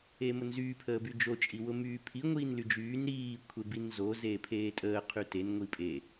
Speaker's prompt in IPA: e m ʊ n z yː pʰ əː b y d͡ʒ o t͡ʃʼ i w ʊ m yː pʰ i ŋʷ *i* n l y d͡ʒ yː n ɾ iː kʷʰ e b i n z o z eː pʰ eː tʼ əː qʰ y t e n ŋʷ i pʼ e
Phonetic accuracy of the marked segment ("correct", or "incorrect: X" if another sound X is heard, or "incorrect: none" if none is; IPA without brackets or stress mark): incorrect: iː